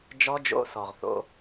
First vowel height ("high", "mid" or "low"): mid